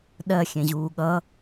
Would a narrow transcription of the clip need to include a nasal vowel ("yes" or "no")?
yes